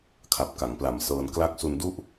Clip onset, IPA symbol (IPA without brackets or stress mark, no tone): kʰ